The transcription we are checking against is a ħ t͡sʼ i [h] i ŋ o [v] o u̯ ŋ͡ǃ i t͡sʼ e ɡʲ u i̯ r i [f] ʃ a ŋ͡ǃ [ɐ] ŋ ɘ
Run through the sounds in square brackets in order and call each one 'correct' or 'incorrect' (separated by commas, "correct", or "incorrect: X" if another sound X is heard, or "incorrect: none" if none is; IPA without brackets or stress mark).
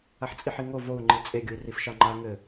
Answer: incorrect: ħ, correct, correct, incorrect: a